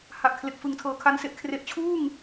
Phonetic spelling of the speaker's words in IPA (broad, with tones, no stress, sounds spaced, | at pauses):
h a˨˩ ʔ kʰ l e˨˩ k̚ f ɯ˨˩ ŋ tʰ ɤː˩˦ kʰ a˧ n s e˦˥ ʔ kʰ r e˨˩ ʔ t͡ɕʰ uː˥˩ ŋ